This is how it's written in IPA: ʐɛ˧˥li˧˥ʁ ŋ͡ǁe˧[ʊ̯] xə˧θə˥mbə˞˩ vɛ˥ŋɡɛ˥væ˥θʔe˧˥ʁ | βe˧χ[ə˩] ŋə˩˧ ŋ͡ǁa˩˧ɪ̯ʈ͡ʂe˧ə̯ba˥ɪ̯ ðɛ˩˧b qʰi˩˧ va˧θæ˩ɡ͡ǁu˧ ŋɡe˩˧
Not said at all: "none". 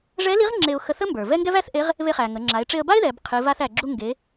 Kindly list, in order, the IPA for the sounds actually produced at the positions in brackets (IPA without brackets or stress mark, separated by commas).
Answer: ʊ̯, æ˩